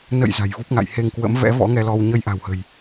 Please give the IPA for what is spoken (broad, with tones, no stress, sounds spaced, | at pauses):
n ə̰˧˨ j z a̤˨˩ j v u˦˥ p̚ ŋ a̰˧˨ j h e˧ ŋ k w ə̰˧˥ m v ɛ̰˧˥ v ɔ̰˧˥ ŋ ɛ˧ l ɔ˧ w ɲ ə˧ j ʔ a̤˨˩ w h ə̤˨˩ j